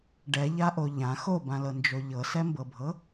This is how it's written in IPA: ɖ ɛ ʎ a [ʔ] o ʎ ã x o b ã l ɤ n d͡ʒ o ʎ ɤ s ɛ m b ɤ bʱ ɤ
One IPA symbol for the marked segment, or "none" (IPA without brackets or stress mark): ʔ